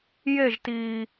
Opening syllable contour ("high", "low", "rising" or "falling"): falling